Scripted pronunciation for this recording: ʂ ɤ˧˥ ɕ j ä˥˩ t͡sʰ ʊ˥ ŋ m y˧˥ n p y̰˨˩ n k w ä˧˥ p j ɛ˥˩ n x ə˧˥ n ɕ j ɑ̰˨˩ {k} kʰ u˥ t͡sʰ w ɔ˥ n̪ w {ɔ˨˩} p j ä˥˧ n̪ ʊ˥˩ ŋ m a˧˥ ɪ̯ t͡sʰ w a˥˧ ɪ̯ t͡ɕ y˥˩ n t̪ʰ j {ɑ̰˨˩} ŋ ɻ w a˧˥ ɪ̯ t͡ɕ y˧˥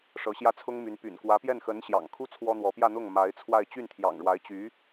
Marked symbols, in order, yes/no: no, no, yes

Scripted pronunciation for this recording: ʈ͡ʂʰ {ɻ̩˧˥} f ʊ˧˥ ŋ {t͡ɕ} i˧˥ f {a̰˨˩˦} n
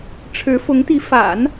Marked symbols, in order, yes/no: yes, no, yes

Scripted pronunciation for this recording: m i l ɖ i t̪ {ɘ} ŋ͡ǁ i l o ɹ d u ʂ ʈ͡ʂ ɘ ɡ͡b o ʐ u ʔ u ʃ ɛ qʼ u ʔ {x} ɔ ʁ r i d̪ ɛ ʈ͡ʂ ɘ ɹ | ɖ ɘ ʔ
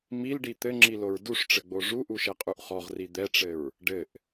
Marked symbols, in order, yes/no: yes, no

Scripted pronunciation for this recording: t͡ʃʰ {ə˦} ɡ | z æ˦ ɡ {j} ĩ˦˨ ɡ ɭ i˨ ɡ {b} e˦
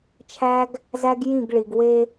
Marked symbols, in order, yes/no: no, yes, no

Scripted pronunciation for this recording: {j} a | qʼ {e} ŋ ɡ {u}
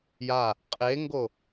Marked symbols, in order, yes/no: yes, yes, no

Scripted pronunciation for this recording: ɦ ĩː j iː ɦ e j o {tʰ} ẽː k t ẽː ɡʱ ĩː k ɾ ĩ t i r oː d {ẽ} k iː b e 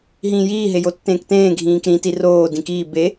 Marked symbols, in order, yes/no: no, no

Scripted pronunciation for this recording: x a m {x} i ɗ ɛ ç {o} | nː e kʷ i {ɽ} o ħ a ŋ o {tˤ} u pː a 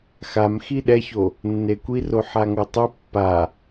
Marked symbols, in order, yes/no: yes, yes, no, yes

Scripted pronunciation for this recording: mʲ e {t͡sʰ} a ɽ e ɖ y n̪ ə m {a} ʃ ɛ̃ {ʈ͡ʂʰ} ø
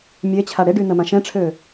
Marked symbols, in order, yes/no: no, no, yes

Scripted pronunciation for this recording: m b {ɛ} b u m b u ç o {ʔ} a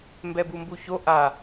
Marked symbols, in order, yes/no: yes, yes

